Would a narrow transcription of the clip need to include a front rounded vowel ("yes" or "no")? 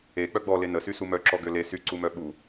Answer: yes